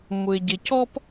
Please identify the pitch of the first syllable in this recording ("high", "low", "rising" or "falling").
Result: low